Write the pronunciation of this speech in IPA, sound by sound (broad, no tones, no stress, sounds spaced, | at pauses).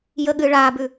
j ə ɠ ɨ ɭ a b ʉ